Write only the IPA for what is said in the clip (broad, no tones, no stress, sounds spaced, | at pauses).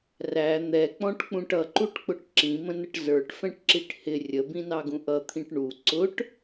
r æ n̪ ɛ k͡p ɔ̃ ʈ k͡p ũ ʈ ʌ ǃ u ʈ k͡p ʊ ʈ ǁ ĩ m ə̃ n ə ʈ z ə˞ ʈ f ɛ̃ ʈ ǁ i ʈ h ɪ rʲ ə b ĩ n ɑ ɡ ũ ʔ ʌ t̪ʰ ĩ ʈ ɳ u ǀ ʊ ʈ